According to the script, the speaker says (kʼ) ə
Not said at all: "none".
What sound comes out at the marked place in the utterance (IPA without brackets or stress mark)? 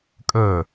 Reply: kʼ